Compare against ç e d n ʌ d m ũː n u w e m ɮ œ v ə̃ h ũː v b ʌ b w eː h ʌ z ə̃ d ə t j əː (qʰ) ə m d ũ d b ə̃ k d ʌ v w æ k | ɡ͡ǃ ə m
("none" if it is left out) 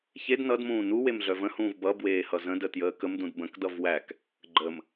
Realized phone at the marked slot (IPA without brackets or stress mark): k